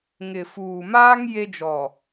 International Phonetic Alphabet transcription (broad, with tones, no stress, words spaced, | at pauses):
ŋɪ˨fuː˨maː˦ŋ je˦d͡ʒɔ˨